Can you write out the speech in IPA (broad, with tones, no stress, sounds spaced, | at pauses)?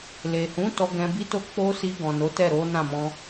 l e˨ h ũ˨˦ t ɔ˧ ɡ ɛ̃˧ b i˦ t o˦ k͡p o˧ s i˧ ɡ ɔ̃˨ n o˨˦ t ɛ˦˨ ɾ o˨˦ n ã˦˨ m ɔ̃˧